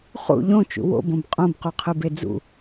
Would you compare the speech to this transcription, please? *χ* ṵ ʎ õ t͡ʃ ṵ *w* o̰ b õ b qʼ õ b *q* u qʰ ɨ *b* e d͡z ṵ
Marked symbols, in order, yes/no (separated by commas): yes, yes, yes, yes